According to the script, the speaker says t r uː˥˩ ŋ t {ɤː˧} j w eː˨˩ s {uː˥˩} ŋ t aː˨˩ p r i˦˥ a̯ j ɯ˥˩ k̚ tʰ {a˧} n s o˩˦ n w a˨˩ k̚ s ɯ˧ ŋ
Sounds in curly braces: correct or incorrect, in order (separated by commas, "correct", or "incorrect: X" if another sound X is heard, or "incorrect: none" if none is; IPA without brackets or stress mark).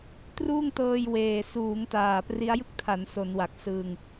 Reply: correct, incorrect: uː˩˦, incorrect: a˩˦